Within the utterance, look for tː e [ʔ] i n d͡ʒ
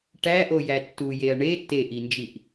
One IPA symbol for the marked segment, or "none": ʔ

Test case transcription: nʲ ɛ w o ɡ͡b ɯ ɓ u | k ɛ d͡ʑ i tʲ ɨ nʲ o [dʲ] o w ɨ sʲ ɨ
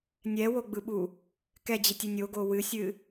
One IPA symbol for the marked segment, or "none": ɡ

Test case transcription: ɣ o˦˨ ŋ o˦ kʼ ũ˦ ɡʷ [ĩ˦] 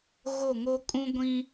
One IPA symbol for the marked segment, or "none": ĩ˦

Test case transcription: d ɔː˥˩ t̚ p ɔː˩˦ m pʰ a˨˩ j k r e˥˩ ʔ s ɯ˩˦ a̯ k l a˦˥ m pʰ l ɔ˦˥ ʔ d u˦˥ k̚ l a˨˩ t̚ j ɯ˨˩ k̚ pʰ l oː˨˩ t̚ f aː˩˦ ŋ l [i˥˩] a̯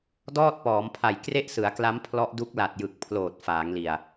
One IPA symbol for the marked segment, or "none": i˨˩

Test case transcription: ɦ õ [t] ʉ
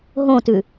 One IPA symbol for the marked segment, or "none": t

